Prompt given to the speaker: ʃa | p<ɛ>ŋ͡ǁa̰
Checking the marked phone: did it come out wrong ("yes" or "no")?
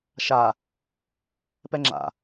no